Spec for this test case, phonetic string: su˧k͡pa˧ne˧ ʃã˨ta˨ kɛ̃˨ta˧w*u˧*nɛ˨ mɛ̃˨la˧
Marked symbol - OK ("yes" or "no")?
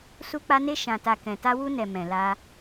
yes